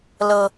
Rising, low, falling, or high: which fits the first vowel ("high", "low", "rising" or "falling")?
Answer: high